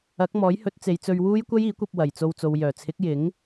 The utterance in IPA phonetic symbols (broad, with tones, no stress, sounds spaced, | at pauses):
ɐ˨˥ k̚ m ɔː˨˥ j h ɵ˨˥ t̚ t͡s e˨˧ j t͡s ɵ˧ ɥ w uː˥ j kʷ ɐ˥ j iː˨˥ kʷ ɐ˧ p̚ w ɐ˨˩ j t͡s o˧ w t͡s o˨ w j œː˨˩ t͡sʰ ɪ˨˥ k̚ j ɪ˨˥ ŋ